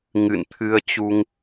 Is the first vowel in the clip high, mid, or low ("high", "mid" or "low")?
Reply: high